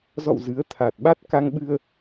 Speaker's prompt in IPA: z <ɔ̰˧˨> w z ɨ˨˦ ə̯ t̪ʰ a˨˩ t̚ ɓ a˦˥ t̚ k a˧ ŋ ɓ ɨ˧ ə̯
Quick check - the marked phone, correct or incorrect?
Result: correct